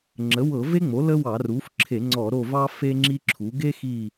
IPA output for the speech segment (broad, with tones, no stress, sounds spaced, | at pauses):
ŋ͡ǁ ə˩˥ w ɤ˧˩˧ v e˥ ŋ͡m o˩˥ l ə˥ w ɑ˧˩˧ r u˩˥ f ǁʰ e˧˩˧ ŋ͡ǀ ɔ˧˩˧ ɾ o˦˨ v ɑ˥ f e˥ ŋ͡ǁ i˥ ǁʰ u˩˥ ɡ e˥ x i˦˨